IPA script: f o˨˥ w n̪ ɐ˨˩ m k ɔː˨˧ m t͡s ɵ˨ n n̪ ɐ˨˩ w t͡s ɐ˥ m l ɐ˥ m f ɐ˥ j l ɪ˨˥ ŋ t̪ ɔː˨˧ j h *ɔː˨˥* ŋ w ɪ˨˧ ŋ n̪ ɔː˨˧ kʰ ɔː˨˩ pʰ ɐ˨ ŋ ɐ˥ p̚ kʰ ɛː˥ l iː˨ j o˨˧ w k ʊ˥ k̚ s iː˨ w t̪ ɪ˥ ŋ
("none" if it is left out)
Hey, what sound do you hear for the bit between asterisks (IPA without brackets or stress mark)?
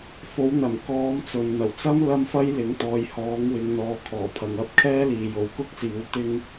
ɔː˨˥